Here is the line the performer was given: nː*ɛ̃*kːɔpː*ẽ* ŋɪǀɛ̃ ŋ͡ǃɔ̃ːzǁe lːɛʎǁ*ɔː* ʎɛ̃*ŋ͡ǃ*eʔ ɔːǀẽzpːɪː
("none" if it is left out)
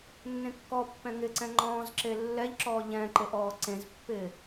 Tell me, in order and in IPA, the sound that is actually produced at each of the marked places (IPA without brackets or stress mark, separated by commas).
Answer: ẽ, ɛ̃, ɔː, ǃ